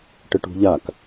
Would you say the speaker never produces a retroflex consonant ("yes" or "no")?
no